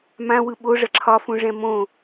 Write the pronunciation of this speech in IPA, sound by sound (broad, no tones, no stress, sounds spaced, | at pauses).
m ã w ɯ ɓ o ʐ ɐ ǁʰ ɒ f ũ ʐ ɛ̃ m õ